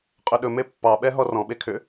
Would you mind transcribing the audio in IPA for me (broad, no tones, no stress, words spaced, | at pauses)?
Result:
qʼɵɗɵme pːɑɓɛ ɦɔrɔ̃ɓe kʰʏ